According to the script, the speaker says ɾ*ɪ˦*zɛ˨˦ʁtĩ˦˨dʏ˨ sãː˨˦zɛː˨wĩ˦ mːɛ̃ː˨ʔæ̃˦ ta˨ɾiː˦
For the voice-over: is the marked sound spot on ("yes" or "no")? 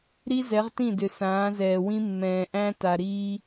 no